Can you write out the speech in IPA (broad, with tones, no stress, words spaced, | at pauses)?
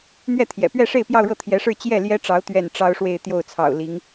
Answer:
n̪ɥɛ˥˩t̪ʰjɛ̰˨˩pɥɛ˥˧ʂe˥˧ɪ̯ pjɑ˥˧ʊ̯ɻɤ˥˩t̪ʰjɛ˧˥ʂɻ̩˥˧ t͡ɕjɛ˥˩ ljɛ˥ʈ͡ʂɑ˧˥ʊ̯ t̪ɥɛ˥˩n ʈ͡ʂɑ˥ʊ̯ʂwe˥˧ɪ̯ t̪jo˥˩ʊ̯t͡sʰɑ̰˨˩ʊ̯ li˧˥ŋ